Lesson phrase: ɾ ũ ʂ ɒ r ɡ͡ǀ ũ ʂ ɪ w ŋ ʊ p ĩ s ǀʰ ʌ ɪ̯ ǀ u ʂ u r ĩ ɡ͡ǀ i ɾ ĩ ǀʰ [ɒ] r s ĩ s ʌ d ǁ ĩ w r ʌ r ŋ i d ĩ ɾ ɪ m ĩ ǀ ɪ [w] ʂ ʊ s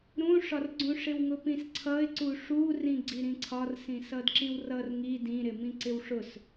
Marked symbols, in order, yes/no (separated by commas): yes, yes